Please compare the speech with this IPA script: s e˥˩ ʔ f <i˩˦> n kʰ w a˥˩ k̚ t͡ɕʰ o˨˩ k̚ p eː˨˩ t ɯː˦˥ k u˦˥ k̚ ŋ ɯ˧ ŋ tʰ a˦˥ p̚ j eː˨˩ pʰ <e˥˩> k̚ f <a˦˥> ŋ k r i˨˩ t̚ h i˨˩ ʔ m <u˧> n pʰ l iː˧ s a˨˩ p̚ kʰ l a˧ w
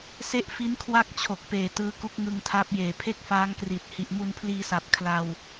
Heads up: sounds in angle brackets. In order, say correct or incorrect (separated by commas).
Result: incorrect, correct, incorrect, correct